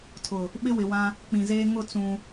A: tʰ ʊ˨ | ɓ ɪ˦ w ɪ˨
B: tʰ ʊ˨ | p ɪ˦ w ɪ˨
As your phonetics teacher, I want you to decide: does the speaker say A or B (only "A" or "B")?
A